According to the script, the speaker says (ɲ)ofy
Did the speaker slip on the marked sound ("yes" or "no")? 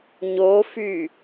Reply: no